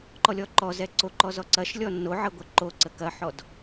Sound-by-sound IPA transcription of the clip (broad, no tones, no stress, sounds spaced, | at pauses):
ǃ ɔ lʲ ɔ ǃ ɔ z ɛ ǀ o ǃ ɔ z ɔ ǀ ɐ ʃ lʲ ɔ n o ʕ ɐ ɡʷ ə ǃ o ǀ ə k ɐ ħ ɔ d